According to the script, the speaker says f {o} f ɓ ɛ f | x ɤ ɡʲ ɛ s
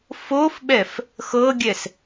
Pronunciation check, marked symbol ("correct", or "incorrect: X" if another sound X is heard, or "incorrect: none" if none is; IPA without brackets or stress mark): correct